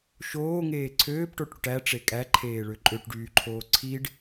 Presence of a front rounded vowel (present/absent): present